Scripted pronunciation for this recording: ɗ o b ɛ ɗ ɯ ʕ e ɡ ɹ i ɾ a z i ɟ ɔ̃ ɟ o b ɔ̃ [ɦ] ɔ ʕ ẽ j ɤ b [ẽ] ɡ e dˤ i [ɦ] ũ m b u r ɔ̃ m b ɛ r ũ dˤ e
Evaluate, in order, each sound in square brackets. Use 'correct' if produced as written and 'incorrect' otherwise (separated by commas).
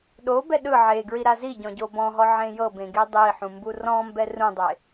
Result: correct, correct, incorrect